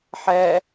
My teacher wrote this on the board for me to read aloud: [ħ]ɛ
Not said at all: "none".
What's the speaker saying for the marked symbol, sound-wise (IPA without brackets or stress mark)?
ħ